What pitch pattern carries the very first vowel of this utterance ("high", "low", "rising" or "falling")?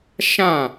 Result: falling